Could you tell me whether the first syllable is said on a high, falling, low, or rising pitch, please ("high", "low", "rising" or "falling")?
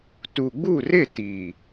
low